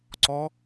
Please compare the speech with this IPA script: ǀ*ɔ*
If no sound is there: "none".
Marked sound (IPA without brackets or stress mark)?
ɔ